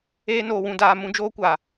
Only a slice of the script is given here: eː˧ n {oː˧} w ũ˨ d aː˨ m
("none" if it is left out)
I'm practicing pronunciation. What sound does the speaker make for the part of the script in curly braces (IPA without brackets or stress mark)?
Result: oː˨